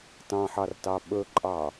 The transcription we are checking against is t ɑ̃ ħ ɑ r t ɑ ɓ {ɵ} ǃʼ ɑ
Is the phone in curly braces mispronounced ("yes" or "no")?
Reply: no